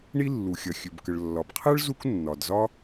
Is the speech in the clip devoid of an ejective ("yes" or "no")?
yes